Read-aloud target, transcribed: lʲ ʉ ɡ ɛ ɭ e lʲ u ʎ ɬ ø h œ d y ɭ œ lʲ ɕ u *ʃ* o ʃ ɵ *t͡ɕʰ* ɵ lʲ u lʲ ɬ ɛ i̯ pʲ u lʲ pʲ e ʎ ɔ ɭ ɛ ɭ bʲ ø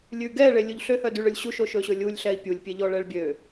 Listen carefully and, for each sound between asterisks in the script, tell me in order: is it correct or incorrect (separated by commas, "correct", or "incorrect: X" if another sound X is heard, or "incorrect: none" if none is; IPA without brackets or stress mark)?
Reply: correct, incorrect: ɕ